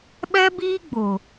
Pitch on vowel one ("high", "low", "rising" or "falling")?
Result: high